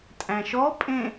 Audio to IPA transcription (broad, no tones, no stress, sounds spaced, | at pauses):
tʼ æ̃ ʃ ɔ pʼ ẽ